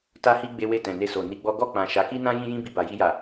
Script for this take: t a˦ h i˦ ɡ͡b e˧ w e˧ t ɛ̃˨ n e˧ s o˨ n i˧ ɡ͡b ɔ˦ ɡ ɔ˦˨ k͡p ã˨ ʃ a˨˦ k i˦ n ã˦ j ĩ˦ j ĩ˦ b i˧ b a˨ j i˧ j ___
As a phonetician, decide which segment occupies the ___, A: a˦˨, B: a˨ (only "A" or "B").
B